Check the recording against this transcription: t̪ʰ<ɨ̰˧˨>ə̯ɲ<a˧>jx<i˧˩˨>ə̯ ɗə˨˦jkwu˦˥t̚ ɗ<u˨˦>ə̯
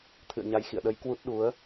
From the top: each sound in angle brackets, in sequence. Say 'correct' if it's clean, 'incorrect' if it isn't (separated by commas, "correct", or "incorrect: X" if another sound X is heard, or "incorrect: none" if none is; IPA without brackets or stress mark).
correct, correct, incorrect: ḭ˧˨, correct